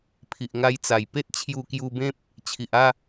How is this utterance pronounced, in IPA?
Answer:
pʰi˨ʔŋa˧jt͡sa˨˩j pe˦t̚t͡ɕʰju˧kju˧bẽ˦p̚ | t͡ɕʰi˨ʔa˥˧

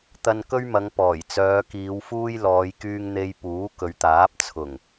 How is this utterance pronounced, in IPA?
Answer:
t̪ɐ˧nkɵ˥ɥmɐ˨˧ŋ pɔː˨˩j t͡sœː˨˧kiː˨˧wfuː˥j lɔː˨˧jkyː˧ŋ n̪e˧j puː˨˥kɵ˨˧ɥt̪aː˨˥p̚ t͡sʰʊ˨˩ŋ

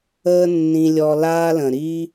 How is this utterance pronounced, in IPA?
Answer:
əː˦ nːĩ˧ lʲɔ˧ laː˦lə̃˨ ɾi˧

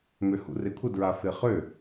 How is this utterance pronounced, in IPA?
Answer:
møhṵrekʷʰə dɹafeχø

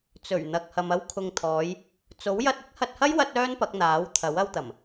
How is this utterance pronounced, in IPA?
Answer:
t͡sɵ˨˩ɥ n̪ɐ˨k̚hɐ˨m ɐ˧wkʰʊ˨ŋt̪ʰɔː˨˧j | t͡so˨˥wjɐ˧t̚ ɪ˥k̚hɐ˧t̚hɐ˥j wɐ˥t̚œː˥npɐ˨˥k̚ n̪aː˨˥wt̪ʰɐ˨˥w ɐ˧wt̪ɐ˨˩m

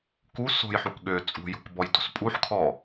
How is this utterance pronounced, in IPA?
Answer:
ku so̤jħuk ɠø t͡sʼṳjo̤kbɔjdo̤s pʼuħkʰɔ

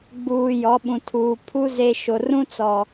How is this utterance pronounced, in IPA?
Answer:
ɡ͡buː˨jɔ˨˦ɓũ˨tʰuː˨ pʰu˦ ze˦ ʃo˨rũ˦ t͡sɔ˨

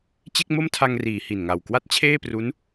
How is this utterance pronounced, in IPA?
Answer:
t͡ɕe˥˩k̚mo˥˩mtʰa˧ŋriː˩˦ hi˨˩nŋa˨˩w kwa˥˩t̚t͡ɕʰeː˥˩pru˦˥n

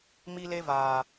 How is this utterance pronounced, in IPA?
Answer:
mi˦le˦vaː˨

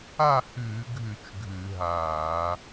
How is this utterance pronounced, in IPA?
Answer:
a˥˨hʉː˧˩˧ ɡʱʉ˧˩˧t͡ʃ ɡʱʉ˧˩˧ɦaː˧˩˧

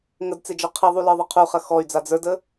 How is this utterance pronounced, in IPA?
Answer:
ŋədt͡sed͡ʒɔ qʰiðˤulə˞ðˤɐ qʰuχɐ xɔy̯d͡za d͡zə˞də

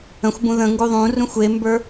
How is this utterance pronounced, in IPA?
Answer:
ə̃xʷbũ ðə̃ ŋɡuðˤũrũxʷ embə˞

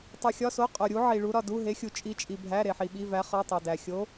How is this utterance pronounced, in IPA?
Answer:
tˤu˨xʲɒ˧˥˧so˧˥˧ qʼo˨ɾʲu˧˥ ʕi˨ɭu˧˥ ɾɒ˨du˧˥˧ɦe˧˥xʲu˨ t͡ʃʼi˧˥t͡ʃʼi˨bʱæ˧˥˧ ɾe˨ħi˨ɓi˧˥˧væ˧˥ χɒ˧˥˧tˤo˨dæ˨ xʲo˧˥

